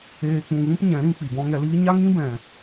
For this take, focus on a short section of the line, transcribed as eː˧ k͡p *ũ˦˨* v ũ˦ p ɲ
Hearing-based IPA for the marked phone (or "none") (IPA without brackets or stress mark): ũ˧